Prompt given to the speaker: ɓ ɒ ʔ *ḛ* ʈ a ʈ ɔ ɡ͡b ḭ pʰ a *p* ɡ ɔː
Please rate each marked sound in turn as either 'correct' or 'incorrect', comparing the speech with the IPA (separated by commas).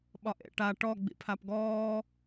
correct, correct